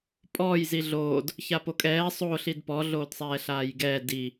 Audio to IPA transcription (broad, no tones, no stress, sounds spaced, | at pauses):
pʼ ɔː j z i ɮ oː d | ç a p o kʼ ɛː sˤ oː ɬ i d p ɔ ɮ oː d sˤ ɛː ɬ aː j ɡ ɛː d i